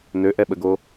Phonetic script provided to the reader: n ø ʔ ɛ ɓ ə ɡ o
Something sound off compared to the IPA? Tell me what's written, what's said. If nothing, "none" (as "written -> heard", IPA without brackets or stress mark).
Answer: none